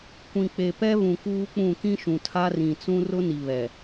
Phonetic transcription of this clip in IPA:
kʷ ĩ˨ k͡p e˨ p ɛ˦ β ũ˨ k uː˦ k͡p ũ˦˨ k ĩ˦ ʃ ũ˨ tʰ a˦ r ĩ˨ t͡s ũ˦ r ʊ˦ n i˨ β ɛ˨

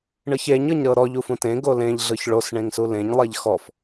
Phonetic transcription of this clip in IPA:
ɳ ɯ ç e ɲ ɤ ɲ ɾ ɤ ɾ ɔ ʎ u f ũ t ẽ ɡ o l ẽ ʎ ɮ ɯ ç ɭ o s ɳ ẽ ŋ s u l ẽ ɲ lˠ e ʎ x ɔ f

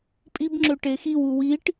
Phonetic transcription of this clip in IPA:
pʼ i b ŋ͡ǁ ø ʈ e x i w u w i ʈ

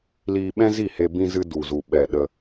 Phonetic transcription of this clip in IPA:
l iː˧ ɓ ɛ̃˦ z i˦˨ h e˧ b ĩ˧ z ɨ˧ d u˨ z u˨ ɓ ɛ˨ ɗ ə˧

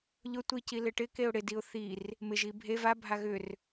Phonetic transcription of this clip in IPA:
ʎ ʊ tʷ i c i l ɪ ʈ ɪ k e ʊ̯ ɽ ɪ d i ʊ̯ θ i r | m ɪ ʒ i bʱ e v a bʱ a ɣ ʏ r

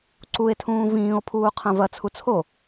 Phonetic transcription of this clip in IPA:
ǀ u e̯ tʰ ũː v ĩː o̯ pʰ uː qʰ ɐ̃ v ɐ t͡sʰ u t͡sʰ o

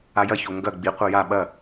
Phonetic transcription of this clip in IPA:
a j ɐ ç o ŋ ɡ ɐ ɡ͡b i qʷ ɐ j a ɓ ɐ

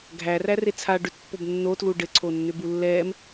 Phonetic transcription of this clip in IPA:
ɡʱ æ r æ r e t͡sʰ a ɖ ʏ t pː o b nː o t l u ɖ ɘ ǀʰ o nː ʏ b u lː ɛː m

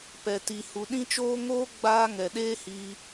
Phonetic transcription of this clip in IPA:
p ɛ˨ t i˨ h u˨ ɗ ĩ˦ t͡ʃ oː˦ ŋ oː˦ ɡ͡b aː˦ ŋ ɛ˨ ɗ eː˦ h iː˧

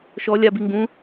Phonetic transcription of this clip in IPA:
ʃ ɔ lʲ a b i ŋ ɡ ũ

